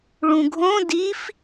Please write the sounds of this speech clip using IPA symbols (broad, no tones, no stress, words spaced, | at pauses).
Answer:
ɭũɡʱõ dif